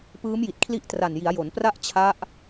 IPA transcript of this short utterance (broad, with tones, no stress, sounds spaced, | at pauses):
p ɯː˦˥ m j i˨˩ t̚ kʰ l i˦˥ ʔ t r a˨˩ n j i˩˦ a̯ j o˩˦ n p r a˥˩ ʔ t͡ɕʰ a˦˥ ʔ